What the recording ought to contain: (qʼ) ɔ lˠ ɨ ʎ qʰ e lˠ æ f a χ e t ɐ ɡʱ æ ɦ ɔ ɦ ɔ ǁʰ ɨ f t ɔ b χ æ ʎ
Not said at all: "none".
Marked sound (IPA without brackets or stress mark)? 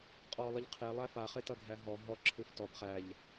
qʼ